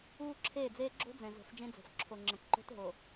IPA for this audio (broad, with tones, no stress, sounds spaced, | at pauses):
uː˦ ǁʰ eː˦˨ d͡z eː˦ ɡ͡ǁ o̤˦ d͡z ɛ̃˨ z ə̤˨˦ f d͡ʒ ẽ˦ d͡z o̤˨ f ǁʰ o˨ ŋ͡ǁ ə̃˨ k ǃ o̤˦ t ɦ o˨